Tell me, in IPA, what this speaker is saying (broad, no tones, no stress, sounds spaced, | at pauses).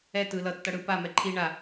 ɛ t ɯ l ʌ tː ʌ ɽ ɯ p a m ɛ ǃʰ i ɳ a